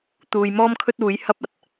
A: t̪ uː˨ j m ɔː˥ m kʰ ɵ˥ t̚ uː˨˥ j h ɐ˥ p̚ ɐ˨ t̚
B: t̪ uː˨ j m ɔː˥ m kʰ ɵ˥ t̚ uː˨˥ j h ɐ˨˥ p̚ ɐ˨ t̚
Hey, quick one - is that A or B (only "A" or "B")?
A